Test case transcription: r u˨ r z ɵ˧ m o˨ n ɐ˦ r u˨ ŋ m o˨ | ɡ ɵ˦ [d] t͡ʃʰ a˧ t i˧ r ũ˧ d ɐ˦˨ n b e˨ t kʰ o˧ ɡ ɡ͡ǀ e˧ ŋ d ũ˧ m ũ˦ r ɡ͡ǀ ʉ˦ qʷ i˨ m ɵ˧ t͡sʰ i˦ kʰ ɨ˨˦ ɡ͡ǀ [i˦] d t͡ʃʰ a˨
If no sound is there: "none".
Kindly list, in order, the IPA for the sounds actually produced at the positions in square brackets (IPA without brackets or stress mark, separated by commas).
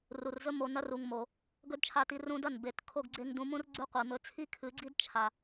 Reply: d, i˦